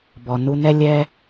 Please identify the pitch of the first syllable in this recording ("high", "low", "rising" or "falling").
low